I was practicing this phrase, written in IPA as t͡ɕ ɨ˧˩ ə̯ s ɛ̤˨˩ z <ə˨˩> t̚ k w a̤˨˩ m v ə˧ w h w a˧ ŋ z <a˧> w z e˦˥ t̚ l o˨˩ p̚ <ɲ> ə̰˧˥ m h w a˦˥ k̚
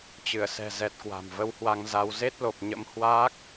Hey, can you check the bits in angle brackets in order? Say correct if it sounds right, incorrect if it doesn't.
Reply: incorrect: ɛ˨˩, correct, correct

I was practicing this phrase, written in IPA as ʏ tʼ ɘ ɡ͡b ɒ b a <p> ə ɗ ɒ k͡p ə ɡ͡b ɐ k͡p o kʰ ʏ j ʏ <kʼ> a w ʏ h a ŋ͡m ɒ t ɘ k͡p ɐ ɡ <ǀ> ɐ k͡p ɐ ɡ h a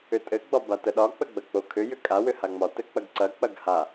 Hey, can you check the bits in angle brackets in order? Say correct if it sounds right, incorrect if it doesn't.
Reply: incorrect: t, correct, correct

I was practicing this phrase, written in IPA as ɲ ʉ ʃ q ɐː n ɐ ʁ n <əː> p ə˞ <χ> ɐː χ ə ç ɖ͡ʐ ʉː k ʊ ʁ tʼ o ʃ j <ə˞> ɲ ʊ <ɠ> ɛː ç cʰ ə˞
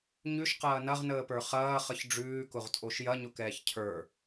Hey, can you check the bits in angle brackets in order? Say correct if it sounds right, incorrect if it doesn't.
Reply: correct, correct, incorrect: ɐ, incorrect: k

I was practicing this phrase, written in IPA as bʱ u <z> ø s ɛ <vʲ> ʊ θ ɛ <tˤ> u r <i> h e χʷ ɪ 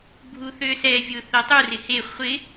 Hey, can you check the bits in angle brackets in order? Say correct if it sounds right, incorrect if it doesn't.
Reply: incorrect: θ, correct, correct, incorrect: ɪ

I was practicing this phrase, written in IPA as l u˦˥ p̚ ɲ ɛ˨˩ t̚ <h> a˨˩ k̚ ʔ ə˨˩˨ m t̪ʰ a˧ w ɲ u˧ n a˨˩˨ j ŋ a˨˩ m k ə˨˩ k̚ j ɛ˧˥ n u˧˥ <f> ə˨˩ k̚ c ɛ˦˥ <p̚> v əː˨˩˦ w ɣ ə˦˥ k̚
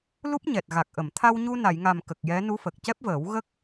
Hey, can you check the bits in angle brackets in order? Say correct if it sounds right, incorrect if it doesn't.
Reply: incorrect: ɣ, correct, correct

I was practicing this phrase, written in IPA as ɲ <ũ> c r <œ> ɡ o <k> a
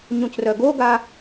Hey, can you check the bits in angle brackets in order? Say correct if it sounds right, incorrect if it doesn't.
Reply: correct, correct, incorrect: ɡ

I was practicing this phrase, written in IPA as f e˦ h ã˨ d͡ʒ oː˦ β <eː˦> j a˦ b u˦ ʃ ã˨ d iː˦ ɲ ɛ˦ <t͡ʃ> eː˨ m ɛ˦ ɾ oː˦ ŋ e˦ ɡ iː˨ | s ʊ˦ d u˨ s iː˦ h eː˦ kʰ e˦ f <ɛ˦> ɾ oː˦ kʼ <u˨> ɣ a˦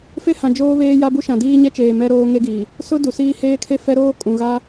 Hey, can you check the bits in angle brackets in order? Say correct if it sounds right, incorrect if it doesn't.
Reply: correct, correct, correct, incorrect: ũ˨

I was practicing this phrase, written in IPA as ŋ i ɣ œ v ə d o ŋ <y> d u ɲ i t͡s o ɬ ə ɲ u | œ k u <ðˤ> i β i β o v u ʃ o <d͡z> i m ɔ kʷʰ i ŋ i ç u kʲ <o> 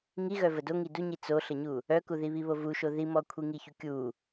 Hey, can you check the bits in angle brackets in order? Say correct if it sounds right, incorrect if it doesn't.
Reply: incorrect: i, incorrect: ð, incorrect: ð, incorrect: u

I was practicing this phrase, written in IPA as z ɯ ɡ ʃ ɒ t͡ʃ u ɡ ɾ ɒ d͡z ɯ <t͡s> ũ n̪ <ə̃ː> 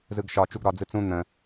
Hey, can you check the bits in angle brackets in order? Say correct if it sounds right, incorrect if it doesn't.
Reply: correct, incorrect: ə̃

